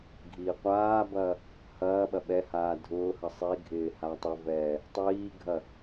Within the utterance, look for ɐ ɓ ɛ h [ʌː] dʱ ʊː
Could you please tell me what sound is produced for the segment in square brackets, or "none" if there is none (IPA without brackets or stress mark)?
aː